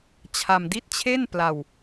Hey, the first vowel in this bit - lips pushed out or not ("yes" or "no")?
no